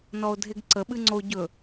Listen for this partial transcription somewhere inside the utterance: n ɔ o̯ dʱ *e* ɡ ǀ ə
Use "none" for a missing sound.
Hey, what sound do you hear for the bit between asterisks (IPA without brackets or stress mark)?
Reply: e